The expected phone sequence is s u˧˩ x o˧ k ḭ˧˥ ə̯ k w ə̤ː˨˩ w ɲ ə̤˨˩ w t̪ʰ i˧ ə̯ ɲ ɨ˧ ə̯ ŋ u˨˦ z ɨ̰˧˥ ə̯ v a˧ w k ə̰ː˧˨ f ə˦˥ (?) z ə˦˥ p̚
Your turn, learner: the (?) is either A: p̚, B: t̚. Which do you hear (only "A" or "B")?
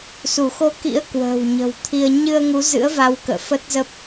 B